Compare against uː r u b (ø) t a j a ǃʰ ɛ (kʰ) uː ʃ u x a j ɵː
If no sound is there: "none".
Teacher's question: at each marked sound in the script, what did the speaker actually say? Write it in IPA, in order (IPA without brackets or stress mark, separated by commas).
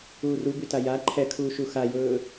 y, kʰ